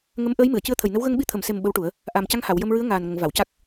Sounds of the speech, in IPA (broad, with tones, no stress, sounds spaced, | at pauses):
ŋ ə˧˥ m ʔ əː˧˥ j m ɨ˨˩˨ ə̯ c ɨ˧ ə̯ t̪ʰ ə˨˩ j n ə˧˥ w ɣ ə˧ ŋ ɓ i˧ t̪ʰ ə˨˩˨ m s e˨˩ m ɓ ə˧˥ w ʈ u˨˩˦ ə̯ | ʔ a˨˩ m c a˧ ŋ h a˨˩˨ w j ə˧ m ɹ ɨ˧˥ ə̯ ŋ aː˨˩ n ŋ ə˨˩˨ ŋ v a˨˩˨ w c a˦˥ k̚